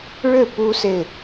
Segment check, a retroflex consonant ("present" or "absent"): present